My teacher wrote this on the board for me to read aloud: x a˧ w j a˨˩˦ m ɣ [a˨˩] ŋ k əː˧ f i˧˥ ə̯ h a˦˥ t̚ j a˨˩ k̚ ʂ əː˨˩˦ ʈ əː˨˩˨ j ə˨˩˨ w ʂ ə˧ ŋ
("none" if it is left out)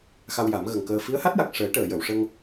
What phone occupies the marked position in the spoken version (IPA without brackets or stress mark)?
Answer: ə˨˩